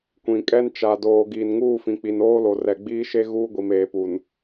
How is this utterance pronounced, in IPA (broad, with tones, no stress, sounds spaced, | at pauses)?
kʷ ĩ˨ kʼ ɛ˦ n t͡ʃ a˨ d oː˨ ɡ iː˨ n ŋ uː˦˨ f ĩ˨ k͡p i˨ n oː˦ l o˨ r ɛ˨ ɡ͡b iː˦ ʃ e˦ ɣ uː˦ ɡʷ i˨ m eː˨ p u˨ n